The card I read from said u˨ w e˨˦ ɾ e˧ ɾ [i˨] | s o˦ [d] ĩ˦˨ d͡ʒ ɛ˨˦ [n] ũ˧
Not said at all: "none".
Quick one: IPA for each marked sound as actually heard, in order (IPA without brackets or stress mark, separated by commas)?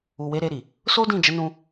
i˨, d, n